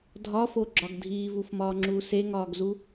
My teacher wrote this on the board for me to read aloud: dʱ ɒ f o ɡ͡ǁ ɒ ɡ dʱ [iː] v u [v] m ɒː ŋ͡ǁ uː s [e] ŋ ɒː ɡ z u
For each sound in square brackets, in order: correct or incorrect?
correct, incorrect, correct

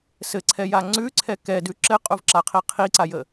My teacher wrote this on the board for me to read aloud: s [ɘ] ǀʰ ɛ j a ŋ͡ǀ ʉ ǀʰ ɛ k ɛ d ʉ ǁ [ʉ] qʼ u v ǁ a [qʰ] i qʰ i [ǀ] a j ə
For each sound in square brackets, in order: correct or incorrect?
correct, incorrect, correct, correct

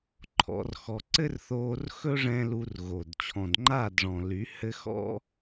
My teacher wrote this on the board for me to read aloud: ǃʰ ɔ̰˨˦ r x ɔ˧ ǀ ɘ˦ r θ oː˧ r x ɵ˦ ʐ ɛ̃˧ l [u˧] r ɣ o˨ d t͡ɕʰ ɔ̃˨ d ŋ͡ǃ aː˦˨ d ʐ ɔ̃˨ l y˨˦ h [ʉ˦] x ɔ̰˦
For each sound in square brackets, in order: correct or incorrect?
correct, incorrect

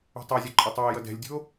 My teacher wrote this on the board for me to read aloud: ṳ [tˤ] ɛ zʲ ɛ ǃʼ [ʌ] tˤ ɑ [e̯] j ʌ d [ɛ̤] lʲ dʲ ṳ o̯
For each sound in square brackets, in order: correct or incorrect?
correct, correct, correct, correct

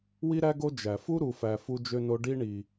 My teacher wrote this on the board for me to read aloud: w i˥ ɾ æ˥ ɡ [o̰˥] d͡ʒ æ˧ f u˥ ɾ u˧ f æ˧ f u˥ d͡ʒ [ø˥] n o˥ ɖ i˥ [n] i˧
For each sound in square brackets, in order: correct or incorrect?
incorrect, correct, incorrect

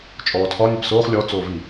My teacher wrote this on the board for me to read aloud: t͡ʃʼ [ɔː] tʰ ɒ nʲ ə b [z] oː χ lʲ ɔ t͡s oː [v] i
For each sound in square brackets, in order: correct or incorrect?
correct, incorrect, correct

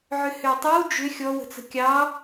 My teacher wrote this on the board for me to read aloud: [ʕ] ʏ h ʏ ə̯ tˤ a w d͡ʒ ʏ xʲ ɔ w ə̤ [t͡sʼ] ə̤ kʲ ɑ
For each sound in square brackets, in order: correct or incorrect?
correct, incorrect

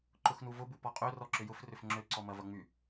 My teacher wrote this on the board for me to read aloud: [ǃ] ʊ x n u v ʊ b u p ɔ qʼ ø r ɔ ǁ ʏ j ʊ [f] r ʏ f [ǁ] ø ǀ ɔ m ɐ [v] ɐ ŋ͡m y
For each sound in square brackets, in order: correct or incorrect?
correct, correct, incorrect, correct

